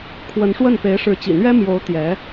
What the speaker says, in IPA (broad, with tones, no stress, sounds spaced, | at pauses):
kʰ w ə˧˥ n ʂ w ə˥˩ n p e˧˥ ɪ̯ ʂ ɻ̩˧˥ t͡ɕ ḭ˨˩ n̪ ɥ ɛ˥ m j o˧˥ ʊ̯ t̪ j ɛ˧˥